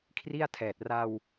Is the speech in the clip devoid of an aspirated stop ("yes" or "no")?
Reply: no